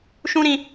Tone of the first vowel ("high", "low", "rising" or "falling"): high